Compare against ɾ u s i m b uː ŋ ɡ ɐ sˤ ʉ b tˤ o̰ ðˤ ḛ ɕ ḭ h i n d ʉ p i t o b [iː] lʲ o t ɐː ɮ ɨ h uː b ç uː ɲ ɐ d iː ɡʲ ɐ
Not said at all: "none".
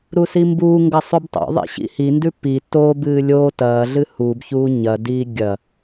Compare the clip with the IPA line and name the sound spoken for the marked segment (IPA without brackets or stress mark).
ɨː